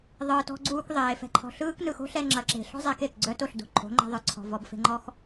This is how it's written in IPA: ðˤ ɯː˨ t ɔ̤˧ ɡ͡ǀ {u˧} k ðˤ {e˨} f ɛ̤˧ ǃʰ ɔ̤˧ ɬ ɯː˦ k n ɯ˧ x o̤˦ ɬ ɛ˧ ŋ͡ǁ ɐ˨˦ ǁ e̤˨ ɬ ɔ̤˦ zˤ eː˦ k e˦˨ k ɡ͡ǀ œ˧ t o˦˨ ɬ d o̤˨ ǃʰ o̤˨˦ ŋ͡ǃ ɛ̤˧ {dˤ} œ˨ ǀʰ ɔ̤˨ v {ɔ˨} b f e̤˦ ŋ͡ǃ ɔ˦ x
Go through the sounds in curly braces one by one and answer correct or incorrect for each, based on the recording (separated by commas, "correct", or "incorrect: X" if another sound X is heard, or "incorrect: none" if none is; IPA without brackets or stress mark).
incorrect: uː˧, incorrect: eː˨, incorrect: ðˤ, incorrect: ɔ˧